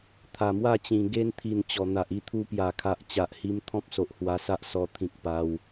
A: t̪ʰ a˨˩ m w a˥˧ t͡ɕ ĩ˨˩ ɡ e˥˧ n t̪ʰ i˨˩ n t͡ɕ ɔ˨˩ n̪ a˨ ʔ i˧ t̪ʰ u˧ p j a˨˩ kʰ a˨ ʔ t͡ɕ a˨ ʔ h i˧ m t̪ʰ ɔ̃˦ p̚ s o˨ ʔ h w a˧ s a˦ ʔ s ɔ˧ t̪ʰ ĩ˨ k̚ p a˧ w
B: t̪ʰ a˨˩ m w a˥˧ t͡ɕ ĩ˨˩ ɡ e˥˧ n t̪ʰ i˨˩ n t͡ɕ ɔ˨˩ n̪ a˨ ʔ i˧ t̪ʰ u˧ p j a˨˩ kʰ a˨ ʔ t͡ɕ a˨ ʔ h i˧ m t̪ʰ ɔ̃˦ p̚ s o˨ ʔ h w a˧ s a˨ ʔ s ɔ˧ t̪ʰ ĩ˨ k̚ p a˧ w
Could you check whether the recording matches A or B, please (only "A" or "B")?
A